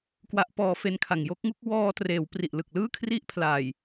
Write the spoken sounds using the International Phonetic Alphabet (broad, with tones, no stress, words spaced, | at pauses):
kwa˦˥ʔpɔː˧fe˦˥nkʰa˨˩ŋ jo˦˥k̚ŋu˥˩k̚ wɔː˧treː˩˦w pri˨˩ʔlɯ˨˩k̚lɯː˥˩ kʰri˥˩ʔ pʰla˨˩j